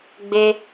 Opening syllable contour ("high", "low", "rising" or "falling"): high